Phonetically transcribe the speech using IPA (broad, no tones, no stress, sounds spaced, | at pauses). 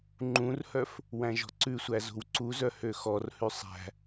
ŋ͡ǃ ũ r h œ f | w æ̃ ʒ ɔ̤ ǀ ʉ sʷ æ z o̤ w ǀ u z œ h ø x ɔ r h ʉ sˤ æ̤